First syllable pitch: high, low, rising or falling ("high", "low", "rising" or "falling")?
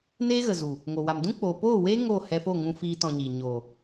high